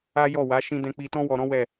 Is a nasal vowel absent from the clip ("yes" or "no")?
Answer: no